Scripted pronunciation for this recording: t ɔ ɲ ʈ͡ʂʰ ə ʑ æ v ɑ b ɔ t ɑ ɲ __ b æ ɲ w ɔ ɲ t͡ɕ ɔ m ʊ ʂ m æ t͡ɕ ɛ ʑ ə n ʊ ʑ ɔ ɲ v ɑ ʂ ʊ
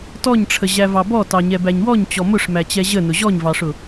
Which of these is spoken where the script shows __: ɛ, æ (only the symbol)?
ɛ